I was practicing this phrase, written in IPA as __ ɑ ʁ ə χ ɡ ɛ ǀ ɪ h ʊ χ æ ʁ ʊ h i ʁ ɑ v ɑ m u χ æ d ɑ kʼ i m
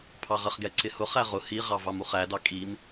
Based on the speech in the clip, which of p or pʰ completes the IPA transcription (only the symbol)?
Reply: pʰ